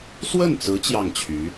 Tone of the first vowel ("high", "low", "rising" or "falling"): falling